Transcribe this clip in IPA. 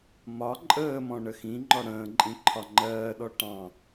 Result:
m ɒ ǃʼ əː m ɔ̃ ɳ ə x ĩ ŋ͡ǃ ɔ ɽ ə̃ː ǃʼ ĩ ǃʰ ɒ ŋ͡ǃ ɜː ɗ ɔ ʈ ɑ̃

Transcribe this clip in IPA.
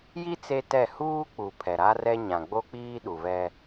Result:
j i˦ t͡s e˦ t ɛ˦˨ h uː˦ k͡p u˨ pʰ ɛ˨ ɾ a˦ r ɛ˦ ɲ ã˨ ɡ͡b o˦ k͡p iː˦ ɗ u˨ v ɛ˦

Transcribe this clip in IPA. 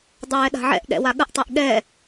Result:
dˤ ɛː ɗ a̤ ʕ ɛ̰ ʔ ɗ ɛ̰ w a ɠ ə ʔ tˤ ɛ ʔ ɠ ɛ

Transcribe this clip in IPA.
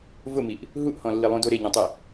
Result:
v ʊ m i ʔ | ɦ u ʔ h ɔ̃ lː i lˠ ũ d o ɾ e ɲ ɔ̃ tˤ e

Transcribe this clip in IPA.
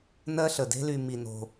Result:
n ɜ˦ ɬ ə˨ d e̤˦ l y˧ m i˧ n o̤˧

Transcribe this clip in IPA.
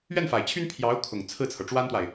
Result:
ɥ ɛ˥˩ n f a˨˩ ɪ̯ t͡ɕʰ y˥ n pʰ j ɑ˧˥ ʊ̯ kʰ ʊ˨˩ ŋ t͡sʰ ɹ̩˥˩ t͡sʰ ɤ˩ ʈ͡ʂ w a˥ n t̪ w a˨ ɪ̯

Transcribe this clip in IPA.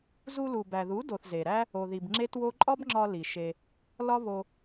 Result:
z u˧ l u˨ b æ˨ ð u˨˦ d o˨ θ z e˨ ɾ æ˦ | o˨ ð i˨ b ŋ͡ǁ e˦ t w o˦ ǃʼ ɒ˦ b ŋ͡ǁ ɒ˧ l i˨ ʃ e˧ | l ɒ˦ β o˧

